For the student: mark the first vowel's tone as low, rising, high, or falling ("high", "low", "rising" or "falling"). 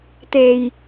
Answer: low